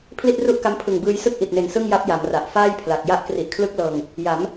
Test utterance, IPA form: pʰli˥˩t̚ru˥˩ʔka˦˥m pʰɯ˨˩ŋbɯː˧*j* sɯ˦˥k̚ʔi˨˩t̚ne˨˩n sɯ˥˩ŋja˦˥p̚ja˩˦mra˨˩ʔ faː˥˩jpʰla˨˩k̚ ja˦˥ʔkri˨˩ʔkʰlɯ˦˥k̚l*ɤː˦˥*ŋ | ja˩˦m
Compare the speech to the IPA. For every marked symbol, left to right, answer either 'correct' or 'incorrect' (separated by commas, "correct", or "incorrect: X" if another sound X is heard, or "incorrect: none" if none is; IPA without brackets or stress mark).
correct, incorrect: ɤː˧